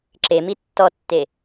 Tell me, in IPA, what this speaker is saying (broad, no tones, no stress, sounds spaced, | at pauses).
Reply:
ǁ e m i tː ɔ tː e